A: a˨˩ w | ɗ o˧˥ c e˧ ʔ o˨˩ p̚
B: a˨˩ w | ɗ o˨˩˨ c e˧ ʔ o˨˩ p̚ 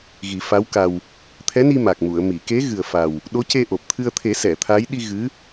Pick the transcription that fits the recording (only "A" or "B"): A